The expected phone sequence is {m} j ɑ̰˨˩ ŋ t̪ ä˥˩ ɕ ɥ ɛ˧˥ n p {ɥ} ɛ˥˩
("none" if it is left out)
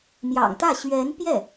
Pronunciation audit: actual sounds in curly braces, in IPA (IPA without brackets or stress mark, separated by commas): m, j